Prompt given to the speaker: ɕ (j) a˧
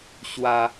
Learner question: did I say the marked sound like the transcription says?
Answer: no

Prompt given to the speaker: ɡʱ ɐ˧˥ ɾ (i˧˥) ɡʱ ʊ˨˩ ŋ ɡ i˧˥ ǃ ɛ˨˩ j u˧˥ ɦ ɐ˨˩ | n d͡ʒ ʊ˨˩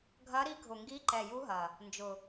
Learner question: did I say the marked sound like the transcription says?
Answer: yes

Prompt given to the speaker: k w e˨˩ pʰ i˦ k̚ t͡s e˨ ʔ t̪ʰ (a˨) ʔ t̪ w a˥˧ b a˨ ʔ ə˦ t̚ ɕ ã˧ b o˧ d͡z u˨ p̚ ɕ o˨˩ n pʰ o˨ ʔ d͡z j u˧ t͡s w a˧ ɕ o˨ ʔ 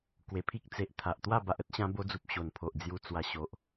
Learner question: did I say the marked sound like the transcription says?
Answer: yes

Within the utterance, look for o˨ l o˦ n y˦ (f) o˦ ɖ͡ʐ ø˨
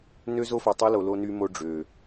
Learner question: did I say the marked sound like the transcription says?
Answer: no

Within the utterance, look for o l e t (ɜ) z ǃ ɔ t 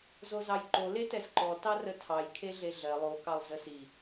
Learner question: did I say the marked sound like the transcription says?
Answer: no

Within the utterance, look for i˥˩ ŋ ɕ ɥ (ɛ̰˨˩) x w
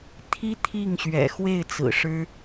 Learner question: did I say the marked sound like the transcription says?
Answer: yes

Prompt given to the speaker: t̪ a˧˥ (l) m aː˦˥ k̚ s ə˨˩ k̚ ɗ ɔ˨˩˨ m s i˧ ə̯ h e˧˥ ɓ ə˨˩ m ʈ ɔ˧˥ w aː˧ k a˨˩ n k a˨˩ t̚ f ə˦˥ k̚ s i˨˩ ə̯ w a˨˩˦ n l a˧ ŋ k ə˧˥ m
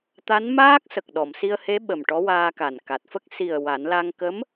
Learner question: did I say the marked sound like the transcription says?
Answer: no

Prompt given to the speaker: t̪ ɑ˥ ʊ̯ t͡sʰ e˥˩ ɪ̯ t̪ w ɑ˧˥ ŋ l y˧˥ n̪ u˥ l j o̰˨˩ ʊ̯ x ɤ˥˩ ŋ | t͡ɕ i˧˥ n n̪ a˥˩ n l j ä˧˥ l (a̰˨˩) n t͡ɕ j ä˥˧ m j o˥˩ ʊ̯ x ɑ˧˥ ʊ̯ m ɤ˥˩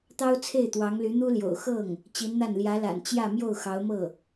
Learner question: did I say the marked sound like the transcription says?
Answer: yes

